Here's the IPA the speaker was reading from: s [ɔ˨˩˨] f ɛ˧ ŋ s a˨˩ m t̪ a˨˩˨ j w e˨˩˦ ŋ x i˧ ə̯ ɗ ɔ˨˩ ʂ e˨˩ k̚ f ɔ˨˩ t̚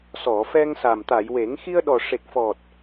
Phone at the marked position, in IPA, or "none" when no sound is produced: ɔ˨˩˨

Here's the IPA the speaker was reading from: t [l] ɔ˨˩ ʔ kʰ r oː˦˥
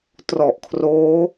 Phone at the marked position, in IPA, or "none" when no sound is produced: r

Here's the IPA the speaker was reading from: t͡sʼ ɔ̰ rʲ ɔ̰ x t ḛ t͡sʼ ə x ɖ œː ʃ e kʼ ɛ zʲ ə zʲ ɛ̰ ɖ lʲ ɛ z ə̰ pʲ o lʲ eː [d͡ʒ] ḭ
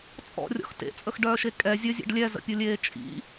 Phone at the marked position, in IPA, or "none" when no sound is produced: t͡ʃʼ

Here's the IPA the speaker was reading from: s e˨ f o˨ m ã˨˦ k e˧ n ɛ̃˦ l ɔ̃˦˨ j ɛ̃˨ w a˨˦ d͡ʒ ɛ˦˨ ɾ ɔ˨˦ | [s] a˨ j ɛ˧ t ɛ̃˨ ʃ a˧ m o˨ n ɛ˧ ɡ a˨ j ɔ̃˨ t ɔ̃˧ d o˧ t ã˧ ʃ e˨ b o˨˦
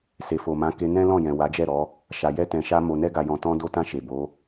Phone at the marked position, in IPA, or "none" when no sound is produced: ʃ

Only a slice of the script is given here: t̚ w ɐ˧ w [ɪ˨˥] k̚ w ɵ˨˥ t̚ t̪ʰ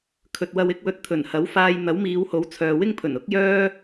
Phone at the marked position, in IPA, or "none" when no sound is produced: ɪ˨˥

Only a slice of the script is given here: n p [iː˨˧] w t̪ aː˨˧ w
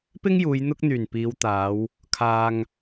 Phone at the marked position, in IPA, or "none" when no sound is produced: iː˨˧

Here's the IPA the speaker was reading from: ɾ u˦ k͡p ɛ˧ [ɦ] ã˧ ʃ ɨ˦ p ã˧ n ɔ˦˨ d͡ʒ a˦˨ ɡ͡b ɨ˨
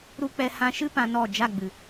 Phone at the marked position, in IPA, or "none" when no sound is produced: h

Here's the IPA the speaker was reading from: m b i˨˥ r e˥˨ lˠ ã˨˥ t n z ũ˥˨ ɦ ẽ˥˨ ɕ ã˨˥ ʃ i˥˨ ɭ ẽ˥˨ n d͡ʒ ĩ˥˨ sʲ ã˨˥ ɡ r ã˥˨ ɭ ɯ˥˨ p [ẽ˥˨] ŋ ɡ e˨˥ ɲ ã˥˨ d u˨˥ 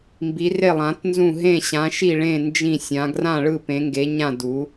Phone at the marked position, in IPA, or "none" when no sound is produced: ẽ˨˥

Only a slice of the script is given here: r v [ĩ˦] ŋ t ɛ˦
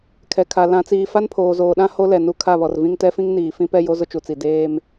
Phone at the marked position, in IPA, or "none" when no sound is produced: ĩ˦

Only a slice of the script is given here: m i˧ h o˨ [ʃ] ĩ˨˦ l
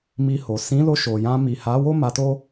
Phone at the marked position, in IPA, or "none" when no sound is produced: s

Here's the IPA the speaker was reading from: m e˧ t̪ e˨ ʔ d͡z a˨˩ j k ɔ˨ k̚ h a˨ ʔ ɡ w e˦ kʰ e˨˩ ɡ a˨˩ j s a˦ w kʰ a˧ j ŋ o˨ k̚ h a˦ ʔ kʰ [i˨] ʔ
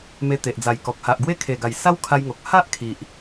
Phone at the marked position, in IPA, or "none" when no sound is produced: i˨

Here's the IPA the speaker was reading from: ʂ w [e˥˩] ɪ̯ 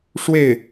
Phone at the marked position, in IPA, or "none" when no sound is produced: e˥˩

